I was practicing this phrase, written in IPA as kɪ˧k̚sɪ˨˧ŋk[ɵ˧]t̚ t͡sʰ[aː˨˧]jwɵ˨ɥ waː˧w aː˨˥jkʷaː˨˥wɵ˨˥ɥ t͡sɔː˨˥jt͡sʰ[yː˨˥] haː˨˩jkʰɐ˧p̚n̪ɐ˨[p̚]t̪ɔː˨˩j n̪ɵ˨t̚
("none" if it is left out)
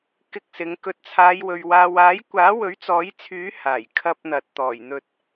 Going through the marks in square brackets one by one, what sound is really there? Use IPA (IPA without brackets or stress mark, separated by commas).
ɵ˧, aː˨˧, yː˨˥, t̚